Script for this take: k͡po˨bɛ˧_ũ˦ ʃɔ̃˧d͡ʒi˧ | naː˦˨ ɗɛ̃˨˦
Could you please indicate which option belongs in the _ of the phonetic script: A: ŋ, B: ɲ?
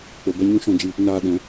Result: B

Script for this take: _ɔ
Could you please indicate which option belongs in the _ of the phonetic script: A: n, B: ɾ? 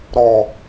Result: B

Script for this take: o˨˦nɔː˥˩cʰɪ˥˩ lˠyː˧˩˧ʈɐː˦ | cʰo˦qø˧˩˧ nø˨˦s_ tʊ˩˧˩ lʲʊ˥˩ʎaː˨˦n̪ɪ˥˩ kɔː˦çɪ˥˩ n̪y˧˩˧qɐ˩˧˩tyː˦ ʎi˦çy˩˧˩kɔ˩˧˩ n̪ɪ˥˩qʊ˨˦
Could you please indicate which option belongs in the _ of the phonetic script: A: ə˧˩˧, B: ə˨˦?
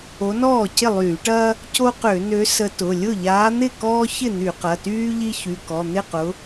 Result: B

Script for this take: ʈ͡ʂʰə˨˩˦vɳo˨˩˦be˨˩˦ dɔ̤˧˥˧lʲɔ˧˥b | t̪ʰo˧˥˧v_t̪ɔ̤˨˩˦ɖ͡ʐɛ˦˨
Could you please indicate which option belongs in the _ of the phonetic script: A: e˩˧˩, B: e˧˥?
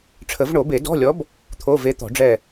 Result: B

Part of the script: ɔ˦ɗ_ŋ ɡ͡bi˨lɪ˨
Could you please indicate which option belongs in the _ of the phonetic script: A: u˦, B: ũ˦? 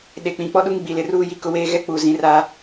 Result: A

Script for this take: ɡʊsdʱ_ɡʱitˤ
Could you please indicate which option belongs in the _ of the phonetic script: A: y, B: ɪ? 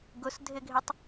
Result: B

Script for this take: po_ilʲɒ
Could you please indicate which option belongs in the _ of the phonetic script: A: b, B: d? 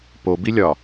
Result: A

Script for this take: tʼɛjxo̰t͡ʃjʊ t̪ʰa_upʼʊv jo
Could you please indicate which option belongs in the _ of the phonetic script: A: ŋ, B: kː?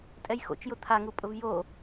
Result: A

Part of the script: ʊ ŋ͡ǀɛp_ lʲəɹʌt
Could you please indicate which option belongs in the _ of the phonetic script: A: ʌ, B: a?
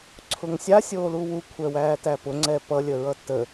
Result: A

